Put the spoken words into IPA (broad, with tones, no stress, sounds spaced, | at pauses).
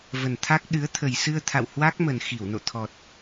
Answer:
v ə˨˩ n t̪ʰ a˦˥ k̚ ɗ ɨ˨˦ ə̯ t̪ʰ ə˨˩ j s ɨ˧ ə̯ t̪ʰ a̰˧˨ w h w a˦˥ k̚ m ə˨˩ n x i˧˩ w n o̰˧˨ t̪ʰ ɔ˨˩ t̚